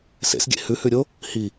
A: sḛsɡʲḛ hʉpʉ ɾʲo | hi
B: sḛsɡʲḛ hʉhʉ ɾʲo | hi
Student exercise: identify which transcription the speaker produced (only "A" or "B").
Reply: B